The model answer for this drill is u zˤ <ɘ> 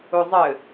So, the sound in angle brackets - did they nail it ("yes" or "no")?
yes